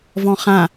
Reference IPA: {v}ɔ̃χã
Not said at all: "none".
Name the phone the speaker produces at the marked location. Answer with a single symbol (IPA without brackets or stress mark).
v